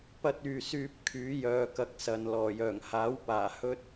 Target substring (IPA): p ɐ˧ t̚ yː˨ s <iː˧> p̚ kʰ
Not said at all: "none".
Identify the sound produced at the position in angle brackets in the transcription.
yː˧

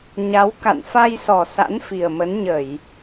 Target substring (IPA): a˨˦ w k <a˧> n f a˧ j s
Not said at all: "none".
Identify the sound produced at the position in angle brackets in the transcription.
a̰˧˨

